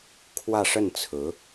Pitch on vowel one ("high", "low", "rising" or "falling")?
falling